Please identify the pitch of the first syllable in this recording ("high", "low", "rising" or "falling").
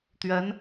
rising